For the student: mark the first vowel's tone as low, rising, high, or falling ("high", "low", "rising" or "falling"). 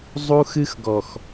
high